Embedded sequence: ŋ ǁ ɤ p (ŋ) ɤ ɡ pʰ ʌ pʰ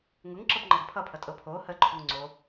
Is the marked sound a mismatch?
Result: yes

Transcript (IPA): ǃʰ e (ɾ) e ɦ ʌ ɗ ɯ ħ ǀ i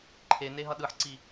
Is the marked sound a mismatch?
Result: yes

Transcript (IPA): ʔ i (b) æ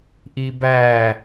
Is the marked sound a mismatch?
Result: no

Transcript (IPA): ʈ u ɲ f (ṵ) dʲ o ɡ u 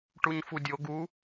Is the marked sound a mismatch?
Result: yes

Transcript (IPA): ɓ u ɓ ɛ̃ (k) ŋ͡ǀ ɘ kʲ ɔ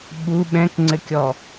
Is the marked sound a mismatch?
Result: no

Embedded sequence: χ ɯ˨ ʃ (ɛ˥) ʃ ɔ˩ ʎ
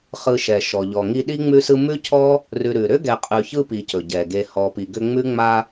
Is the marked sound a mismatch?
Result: yes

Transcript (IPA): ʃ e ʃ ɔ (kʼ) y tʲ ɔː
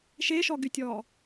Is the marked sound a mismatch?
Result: yes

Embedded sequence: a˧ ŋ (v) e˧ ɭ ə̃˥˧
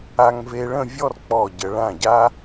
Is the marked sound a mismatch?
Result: no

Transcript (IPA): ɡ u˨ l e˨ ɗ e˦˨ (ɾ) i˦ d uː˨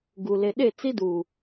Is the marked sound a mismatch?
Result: yes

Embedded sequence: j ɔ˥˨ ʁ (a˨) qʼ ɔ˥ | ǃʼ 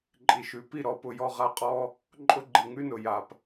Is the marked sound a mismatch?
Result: yes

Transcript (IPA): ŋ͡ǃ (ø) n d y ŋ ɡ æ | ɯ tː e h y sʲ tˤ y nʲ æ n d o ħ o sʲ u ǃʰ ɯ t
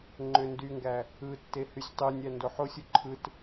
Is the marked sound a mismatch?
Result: no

